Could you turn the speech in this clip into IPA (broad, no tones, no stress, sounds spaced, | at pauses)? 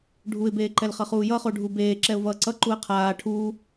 ɖʱ u ɪ̯ b eː ǃ ɛ l χ ʌ χ uː j ʌ χ o ɖʱ u b eː ǁ ɛ ʊ̯ v ʌː ǀ ʌ ǃ u ə̯ qʰ aː ʈʰ uː